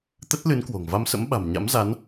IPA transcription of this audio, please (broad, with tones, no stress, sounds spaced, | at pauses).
t̪ ə˦˥ t̚ l ɨ˨˦ n k w o̤˨˩ ŋ v a˧ m s ə̰˧˥ m ɓ a̤˨˩ m ɲ a̰˧˥ m z a˨˦ n